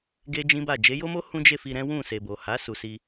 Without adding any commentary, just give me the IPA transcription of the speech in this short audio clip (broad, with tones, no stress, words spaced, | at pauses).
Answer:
ɡe˦d͡ʒĩ˦ba˦˨ d͡ʒe˨˦jo˦mo˦ hũ˦d͡ʒe˦˨fi˧ ɾɛ̃˦wũ˦˨ se˨bo˨ha˨˦ su˧si˧